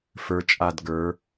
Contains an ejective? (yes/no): yes